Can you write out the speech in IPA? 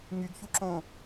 ŋ y ɡ ç u ǁ õ

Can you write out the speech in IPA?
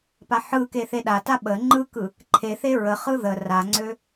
p a ħ ɯ k e θ e ɗ a t a ɓ ə ŋ͡ǃ ɯ k ɯ | ǃʰ e θ e ɹ ə χ ɯ ð ə r a ŋ͡ǀ ø

